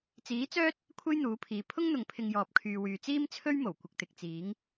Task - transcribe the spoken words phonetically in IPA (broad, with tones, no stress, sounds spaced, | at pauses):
t͡s iː˨˥ t͡s œː˥ t̚ | kʷʰ e˥ j n̪ uː˨˥ pʰ iː˨ pʰ ʊ˥ ŋ n̪ ʊ˨ ŋ pʰ ɪ˧ ŋ j ɔː˨ p̚ kʰ yː˨ w yː˨ t͡s iː˥ m t͡sʰ ɵ˥ ɥ m o˨˩ w kʷ ɪ˨ k̚ t̪ ɪ˨ k̚ t͡s iː˨˥ ŋ